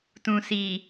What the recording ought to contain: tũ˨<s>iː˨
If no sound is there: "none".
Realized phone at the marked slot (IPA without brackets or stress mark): s